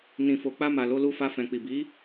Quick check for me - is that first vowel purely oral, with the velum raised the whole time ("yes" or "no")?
no